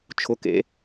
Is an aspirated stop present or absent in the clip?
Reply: present